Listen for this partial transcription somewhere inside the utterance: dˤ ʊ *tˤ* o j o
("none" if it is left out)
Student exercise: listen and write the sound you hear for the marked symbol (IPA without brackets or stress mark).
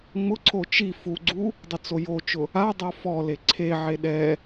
t͡s